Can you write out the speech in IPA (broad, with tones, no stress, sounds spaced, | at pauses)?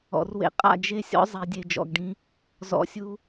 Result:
ɔ̰˨ r w ḛ˧ qʼ a̰˦˨ d͡ʒ e˦ sʲ ɔ̰˦ zˤ e˨˦ dʲ e˧ d͡ʒ ɔ̰˧ ɡ ɖ ĩ˦ | z ɔ̰˧ sʲ u˦